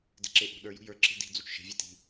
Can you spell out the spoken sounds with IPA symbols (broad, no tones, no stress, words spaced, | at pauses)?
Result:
de̤ǁeʔo̤ɗə˞ jṳjə˞ ǁe̤di̤ d͡zut͡ʃʃe̤ vʲeti̤